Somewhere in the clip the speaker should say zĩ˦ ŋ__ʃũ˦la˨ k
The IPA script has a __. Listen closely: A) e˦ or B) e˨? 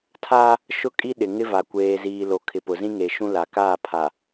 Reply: B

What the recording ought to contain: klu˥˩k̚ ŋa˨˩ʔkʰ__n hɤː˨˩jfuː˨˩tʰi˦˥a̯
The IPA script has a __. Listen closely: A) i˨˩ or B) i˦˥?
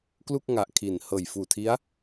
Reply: A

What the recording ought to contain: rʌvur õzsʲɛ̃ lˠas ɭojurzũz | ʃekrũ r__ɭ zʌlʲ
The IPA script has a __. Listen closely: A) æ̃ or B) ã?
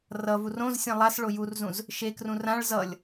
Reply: B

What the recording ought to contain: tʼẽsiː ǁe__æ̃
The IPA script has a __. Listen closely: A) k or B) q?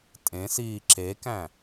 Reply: A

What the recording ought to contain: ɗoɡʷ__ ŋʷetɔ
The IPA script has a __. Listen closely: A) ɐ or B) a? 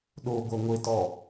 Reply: A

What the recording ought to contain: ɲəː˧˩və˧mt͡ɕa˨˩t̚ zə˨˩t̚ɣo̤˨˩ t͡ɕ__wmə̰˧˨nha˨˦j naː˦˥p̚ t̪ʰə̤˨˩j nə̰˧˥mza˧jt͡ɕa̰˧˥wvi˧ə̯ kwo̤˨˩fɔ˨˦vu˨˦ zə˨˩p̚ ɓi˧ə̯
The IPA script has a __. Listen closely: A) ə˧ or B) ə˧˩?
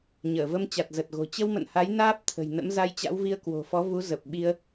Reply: A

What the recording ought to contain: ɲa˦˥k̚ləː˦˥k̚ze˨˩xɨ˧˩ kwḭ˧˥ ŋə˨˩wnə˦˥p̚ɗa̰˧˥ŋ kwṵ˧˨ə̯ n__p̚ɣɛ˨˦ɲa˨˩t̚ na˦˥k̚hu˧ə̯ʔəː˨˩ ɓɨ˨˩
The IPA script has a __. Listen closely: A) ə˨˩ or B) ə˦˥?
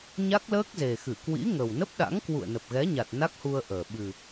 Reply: A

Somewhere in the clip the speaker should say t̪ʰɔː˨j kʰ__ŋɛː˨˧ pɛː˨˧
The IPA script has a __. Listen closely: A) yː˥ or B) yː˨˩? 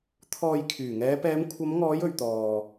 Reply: B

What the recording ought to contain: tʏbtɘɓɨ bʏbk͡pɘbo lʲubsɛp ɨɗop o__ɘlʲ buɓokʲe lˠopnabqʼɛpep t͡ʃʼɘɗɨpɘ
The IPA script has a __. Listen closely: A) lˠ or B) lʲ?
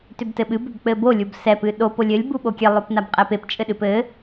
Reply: B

